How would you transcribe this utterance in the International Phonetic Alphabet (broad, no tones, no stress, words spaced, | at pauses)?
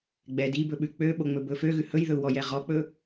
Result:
ɡ͡bɛd ibɵɓʉ k͡pøɓoŋ͡mɵbɵ føɣʉ hɵjðɵu̯wɔjɛ ʁɔk͡pɵ